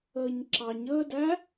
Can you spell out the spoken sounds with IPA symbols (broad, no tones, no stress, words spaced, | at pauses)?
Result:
əːɲǁɑɲəːdæ